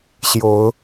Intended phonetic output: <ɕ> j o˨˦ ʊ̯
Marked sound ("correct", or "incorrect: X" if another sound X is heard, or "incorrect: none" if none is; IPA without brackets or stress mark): correct